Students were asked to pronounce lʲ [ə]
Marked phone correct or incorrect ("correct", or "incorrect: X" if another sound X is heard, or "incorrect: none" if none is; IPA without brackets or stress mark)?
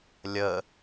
correct